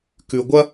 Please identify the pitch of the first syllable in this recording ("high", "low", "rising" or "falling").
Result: low